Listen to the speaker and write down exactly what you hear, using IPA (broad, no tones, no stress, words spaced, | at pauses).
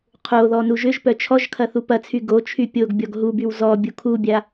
qʰoðɔ nuʒʏʒ pœt͡ʃʰɔʒkʰɐ θupɐt͡sʰy ɡot͡ʃʰy pʲoɡbʲɔɡ ɦubyw zɔ bʲukʰubʲa